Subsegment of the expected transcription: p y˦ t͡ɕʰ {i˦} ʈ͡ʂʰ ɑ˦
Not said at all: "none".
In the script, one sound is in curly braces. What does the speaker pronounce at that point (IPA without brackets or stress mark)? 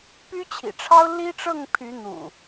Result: ḭ˨˩